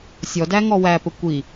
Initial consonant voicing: voiceless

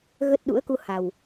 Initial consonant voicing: voiced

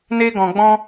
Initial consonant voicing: voiced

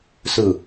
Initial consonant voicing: voiceless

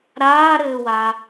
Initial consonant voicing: voiced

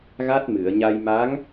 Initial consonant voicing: voiced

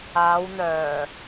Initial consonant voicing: voiced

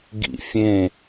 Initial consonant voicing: voiced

